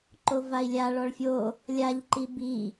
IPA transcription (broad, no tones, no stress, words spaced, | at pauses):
ǃovai̯lʲa ɭɔɭfʲo | lʲaʎ ǃibi